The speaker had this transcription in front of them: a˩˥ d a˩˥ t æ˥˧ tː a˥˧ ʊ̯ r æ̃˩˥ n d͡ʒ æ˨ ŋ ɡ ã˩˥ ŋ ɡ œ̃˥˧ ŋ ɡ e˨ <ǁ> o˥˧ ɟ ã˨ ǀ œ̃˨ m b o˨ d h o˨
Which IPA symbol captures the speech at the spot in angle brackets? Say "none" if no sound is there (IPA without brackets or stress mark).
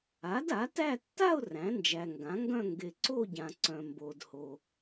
ǀ